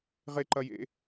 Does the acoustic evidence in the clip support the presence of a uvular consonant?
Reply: yes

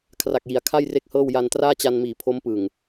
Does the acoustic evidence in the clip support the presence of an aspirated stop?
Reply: yes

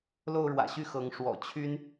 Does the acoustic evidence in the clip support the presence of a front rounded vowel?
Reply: yes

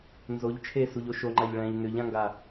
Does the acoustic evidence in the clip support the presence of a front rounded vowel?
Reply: yes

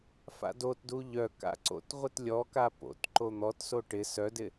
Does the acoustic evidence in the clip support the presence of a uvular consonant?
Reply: yes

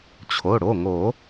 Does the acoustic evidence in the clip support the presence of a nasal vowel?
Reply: no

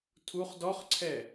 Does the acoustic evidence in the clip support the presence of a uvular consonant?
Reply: yes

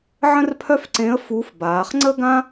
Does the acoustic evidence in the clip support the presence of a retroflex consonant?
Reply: no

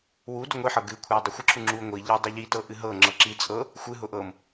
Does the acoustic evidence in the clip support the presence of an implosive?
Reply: no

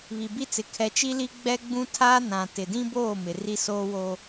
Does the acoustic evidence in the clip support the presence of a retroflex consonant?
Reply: no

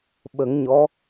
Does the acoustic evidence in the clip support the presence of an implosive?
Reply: yes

